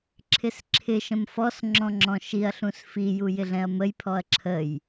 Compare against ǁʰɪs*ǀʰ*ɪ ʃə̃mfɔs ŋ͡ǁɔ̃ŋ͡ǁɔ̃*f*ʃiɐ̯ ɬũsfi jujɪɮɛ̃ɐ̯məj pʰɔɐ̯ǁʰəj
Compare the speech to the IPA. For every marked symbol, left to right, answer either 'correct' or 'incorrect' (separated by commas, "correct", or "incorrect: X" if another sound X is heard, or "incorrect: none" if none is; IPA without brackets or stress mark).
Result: incorrect: ǁʰ, incorrect: none